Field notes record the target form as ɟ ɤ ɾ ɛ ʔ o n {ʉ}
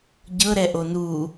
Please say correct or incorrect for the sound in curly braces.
incorrect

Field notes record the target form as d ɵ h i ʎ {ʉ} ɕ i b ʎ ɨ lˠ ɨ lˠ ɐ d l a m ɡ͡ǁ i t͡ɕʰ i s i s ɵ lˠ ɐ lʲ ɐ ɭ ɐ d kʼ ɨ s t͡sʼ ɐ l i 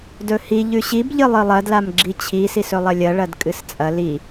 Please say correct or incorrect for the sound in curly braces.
correct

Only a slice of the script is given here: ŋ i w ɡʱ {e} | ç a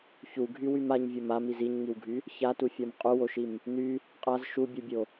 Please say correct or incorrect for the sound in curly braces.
incorrect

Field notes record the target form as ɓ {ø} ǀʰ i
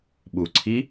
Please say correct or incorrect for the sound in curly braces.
incorrect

